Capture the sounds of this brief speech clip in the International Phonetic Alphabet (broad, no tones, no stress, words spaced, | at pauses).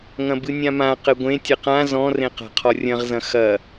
ŋɐ̃bɨnʲãmã qɘɡʷẽ tʲɘqã zɔ̃rẽ qa̤qʰɔrʲɐ̃ʁzɐ̃ xɐ